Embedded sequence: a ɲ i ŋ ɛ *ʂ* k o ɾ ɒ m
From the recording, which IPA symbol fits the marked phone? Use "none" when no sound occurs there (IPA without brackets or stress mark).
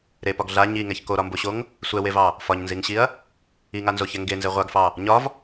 ç